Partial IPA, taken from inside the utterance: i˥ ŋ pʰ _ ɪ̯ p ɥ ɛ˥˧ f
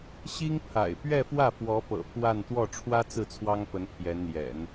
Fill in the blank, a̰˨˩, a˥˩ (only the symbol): a̰˨˩